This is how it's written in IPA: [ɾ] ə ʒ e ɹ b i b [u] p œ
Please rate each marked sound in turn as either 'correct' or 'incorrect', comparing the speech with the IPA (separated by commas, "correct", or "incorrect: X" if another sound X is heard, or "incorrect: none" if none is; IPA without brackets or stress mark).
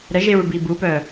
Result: correct, correct